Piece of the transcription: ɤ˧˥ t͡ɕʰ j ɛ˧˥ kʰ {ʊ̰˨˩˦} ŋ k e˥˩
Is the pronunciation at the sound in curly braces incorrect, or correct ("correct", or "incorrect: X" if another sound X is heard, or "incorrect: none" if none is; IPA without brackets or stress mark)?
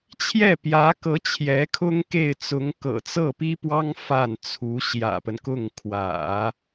incorrect: ʊ˥